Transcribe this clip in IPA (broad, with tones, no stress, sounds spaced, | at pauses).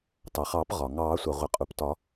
t ɑ˩ χ ɑː˨˩˦ p ʁ ɒ˩ ŋ ɑː˨˩˦ sʷ ɑ˩ ʁʷ ɪ˩ qʼ u˩ p t ɒ˨˩˦